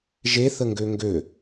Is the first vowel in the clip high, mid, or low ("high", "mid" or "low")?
mid